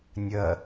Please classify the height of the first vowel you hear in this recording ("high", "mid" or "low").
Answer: low